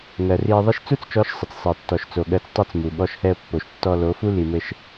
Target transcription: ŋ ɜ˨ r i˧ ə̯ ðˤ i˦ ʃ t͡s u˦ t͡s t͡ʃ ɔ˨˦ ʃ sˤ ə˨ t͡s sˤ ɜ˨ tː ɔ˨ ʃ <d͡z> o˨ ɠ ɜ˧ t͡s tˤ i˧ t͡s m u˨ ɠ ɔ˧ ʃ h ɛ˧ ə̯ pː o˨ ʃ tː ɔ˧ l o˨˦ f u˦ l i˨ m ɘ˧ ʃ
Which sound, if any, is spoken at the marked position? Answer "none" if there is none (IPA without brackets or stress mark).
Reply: t͡s